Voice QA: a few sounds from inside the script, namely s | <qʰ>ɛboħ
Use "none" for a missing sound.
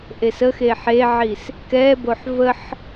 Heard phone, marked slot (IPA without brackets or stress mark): k